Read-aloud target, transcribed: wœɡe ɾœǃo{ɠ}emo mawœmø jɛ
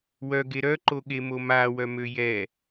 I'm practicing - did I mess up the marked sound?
no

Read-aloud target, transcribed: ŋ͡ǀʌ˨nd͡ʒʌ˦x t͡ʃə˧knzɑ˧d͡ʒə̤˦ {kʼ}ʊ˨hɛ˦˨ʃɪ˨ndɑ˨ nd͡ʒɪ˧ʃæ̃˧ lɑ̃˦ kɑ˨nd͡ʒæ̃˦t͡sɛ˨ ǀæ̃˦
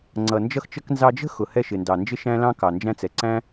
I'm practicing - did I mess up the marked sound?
yes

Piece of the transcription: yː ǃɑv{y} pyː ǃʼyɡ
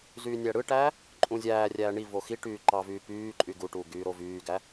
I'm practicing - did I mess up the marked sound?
yes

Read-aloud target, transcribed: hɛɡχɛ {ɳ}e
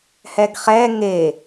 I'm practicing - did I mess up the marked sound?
yes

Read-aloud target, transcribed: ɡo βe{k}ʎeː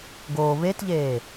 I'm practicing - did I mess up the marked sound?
yes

